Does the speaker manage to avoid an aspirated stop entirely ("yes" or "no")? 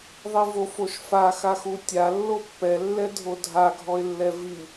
yes